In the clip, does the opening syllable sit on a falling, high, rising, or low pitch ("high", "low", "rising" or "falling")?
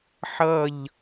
falling